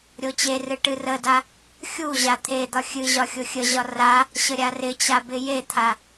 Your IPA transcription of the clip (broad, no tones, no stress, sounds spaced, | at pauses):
ɾʲ o t͡ɕ e r ɨ ʈ ɨ r ə d a | xʲ u ʑ a t̪ʰ e d̪ ɒ xʲ ɨ ʑ ɒ xʲ o xʲ ə ʑ ɒ r a | ɕ ə ɾʲ a r ɪ t͡ɕ a b ɪ j e t̪ʰ a